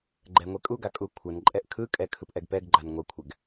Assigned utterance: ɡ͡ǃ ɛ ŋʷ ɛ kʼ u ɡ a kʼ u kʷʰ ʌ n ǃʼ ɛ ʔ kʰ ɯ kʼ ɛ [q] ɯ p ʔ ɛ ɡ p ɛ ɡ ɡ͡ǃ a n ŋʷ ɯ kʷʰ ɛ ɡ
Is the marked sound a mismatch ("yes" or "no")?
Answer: yes